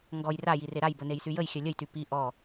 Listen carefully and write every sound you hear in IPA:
ŋ ɡ ɔ j r a j i r e ɾ a j b ə n e j s y j ə j xʲ œ lʲ ə j t y p i ʔ ɔ

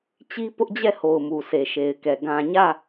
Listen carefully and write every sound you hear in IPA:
t͡ɕ i˦ p ʊ˦ ʔ d͡ʑ ɛ˦˨ h o˨ ʊ̯ m u˨ s e˨ ʃ e˨ ɪ̯ k ɛ˨ ɡ ã˨ ɲ ä˦˨

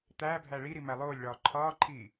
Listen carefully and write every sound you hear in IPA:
t̪ æː bʱ æ ɭ i ɾ i m æ lˠ oː lʲ ɭ ɒː ǃʰ ɒː ǃʰ iː

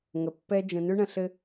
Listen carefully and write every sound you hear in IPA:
ŋ ə˨ pː ɛ˦ d͡ʒ ə̃˨ n ʉ˦ ɳ ə̃˨ ɬ ɘ˦

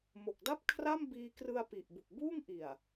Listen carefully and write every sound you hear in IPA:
m o˨˩ k̚ d a˥˩ p̚ kʰ r a˥˩ m b iː˧ k r ɯ˧ a̯ p i˨˩ ʔ b u˨˩ k̚ b uː˥˩ ŋ ʔ i˨˩ a̯

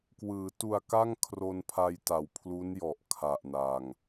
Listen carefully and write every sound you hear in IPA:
k w ɯː˩˦ t u˨˩ a̯ k a˥˩ ŋ kʰ r o˧ n pʰ a˧ j t a˩˦ w pʰ l u˦˥ n j ɔ˨˩ ʔ kʰ a˨˩ ʔ n a˨˩ ŋ

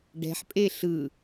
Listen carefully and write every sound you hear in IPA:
ɖ ɛ̤ ħ pʼ e ɬ ɯ

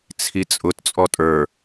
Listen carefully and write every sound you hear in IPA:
t͡sʰ i t͡sʼ ʊ t t͡sʼ ɔ tʼ ə˞

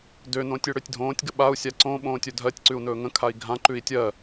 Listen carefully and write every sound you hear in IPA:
d ø n õ tʲ ø ɽ ø tʲ dʱ õː tʲ ɡ ə ɓ a u̯ sʲ a ǀ õ ɓ õː tʲ ɵ dʱ ɜ tʲ ǀ ʉ u̯ n ɵː ŋ ə̃ kʰ a i̯ ɡʱ ã ǃ ʉ i̯ tʲ ɜ

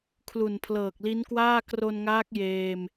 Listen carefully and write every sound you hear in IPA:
kʰ l u˨˩ n pʰ l ɤː˨˩ k̚ l i˦˥ n k w aː˥˩ k r o˧ n ŋ aː˦˥ k̚ j eː˧ m

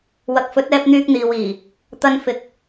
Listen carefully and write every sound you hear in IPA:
w ɐ˨ k̚ f ɵ˨˥ t̚ ɛː˧ p̚ n̪ yː˧ k̚ n̪ iː˨ w iː˨˩ | t̪ ɐ˧ n f ɪ˨˥ k̚

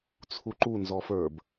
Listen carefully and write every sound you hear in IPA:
t͡sʰ u ǃ u n z ɔ f ə˞ b

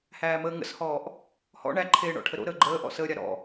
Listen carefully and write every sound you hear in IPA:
h æː m əː ŋ ə̰ s h ɔː ʔ | h ɔ̰ ɳ æ ǃʰ eː ɳ ɔ̰ ʈʰ ə ɾ o̰ ɾ əː ɡ͡ǃ əː ʔ ɔ̰ s əː ɾʲ a ɾ ɔ̰

